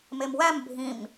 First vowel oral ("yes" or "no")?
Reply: yes